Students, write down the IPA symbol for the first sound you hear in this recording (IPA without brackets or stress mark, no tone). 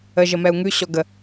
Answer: ə